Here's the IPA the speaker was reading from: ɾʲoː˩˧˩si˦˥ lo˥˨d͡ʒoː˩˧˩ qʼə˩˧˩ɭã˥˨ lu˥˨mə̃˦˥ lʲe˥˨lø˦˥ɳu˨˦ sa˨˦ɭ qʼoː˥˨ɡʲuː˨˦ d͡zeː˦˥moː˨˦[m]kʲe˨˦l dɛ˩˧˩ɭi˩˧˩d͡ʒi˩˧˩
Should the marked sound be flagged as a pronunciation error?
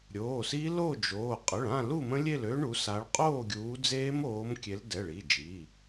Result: no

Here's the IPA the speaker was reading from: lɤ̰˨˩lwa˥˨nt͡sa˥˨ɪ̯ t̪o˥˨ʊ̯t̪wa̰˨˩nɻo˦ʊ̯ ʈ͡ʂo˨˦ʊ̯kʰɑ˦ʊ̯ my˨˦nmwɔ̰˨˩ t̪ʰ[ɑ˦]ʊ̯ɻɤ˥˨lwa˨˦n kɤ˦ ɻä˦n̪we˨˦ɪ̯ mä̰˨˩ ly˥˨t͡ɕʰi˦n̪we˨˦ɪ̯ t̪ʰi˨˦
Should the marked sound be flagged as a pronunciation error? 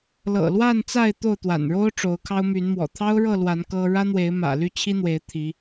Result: no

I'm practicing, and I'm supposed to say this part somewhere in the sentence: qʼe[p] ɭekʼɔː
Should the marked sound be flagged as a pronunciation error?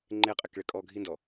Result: yes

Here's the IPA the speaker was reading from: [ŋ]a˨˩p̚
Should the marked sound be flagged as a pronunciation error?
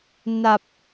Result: yes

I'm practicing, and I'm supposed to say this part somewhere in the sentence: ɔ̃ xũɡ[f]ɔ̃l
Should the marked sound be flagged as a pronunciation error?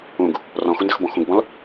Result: yes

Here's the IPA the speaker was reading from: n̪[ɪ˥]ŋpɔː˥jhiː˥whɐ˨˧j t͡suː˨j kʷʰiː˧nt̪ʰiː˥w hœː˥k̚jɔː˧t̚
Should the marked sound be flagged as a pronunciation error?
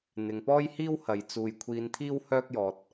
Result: yes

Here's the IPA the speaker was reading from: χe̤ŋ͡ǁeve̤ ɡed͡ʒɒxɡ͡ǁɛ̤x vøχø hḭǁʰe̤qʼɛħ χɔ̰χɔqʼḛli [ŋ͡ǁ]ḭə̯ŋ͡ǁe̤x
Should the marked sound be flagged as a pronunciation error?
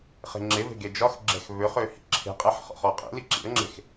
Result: yes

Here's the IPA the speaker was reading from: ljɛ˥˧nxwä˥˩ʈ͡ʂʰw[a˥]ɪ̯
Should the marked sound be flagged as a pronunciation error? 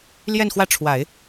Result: yes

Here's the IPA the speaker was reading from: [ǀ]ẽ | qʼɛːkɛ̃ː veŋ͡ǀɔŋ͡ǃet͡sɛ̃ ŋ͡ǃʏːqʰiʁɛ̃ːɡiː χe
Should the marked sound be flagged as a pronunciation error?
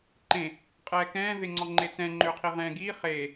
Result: yes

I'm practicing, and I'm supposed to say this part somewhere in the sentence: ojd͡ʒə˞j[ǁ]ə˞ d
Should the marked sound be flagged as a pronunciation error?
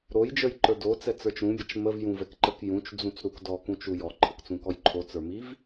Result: yes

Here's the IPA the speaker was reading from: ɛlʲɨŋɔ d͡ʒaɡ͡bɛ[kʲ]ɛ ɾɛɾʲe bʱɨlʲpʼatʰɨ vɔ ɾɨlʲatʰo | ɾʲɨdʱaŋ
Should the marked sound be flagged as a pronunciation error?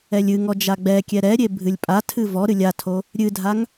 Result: no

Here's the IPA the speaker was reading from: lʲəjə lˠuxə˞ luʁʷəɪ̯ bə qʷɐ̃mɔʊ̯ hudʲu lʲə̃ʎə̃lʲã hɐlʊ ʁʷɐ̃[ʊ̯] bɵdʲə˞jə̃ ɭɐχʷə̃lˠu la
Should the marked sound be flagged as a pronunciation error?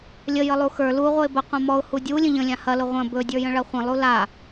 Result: yes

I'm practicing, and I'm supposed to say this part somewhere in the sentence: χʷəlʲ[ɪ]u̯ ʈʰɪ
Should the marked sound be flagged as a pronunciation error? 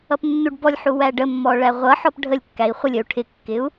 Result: yes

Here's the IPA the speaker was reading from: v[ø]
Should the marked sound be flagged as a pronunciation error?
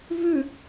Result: yes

